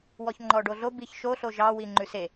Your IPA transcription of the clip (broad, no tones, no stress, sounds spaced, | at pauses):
w ɔ ç ŋ͡ǃ ɔ ɖ o ɮ o b i ç ʃ o ɬ o ʒ ɑ w i ŋ͡ǃ ʉ s e